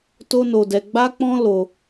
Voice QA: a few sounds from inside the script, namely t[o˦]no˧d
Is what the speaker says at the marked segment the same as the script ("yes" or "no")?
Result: yes